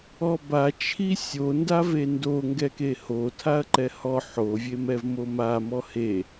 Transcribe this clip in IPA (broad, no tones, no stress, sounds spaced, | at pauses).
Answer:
ɔ b a t͡ʃʰ i sʲ o n d a v e n d o ŋ ɡ ɛ k e h o tʰ a ɐ̯ ǃ ɛ h ɔ ħ o vʲ e m ɛ v m o m a m ɔ h e